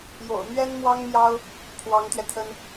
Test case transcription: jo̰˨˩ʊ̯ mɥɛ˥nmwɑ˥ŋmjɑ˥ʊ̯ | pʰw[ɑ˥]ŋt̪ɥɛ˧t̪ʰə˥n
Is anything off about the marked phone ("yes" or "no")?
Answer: yes